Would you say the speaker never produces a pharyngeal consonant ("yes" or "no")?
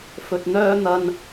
yes